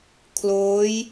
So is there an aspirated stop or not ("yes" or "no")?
yes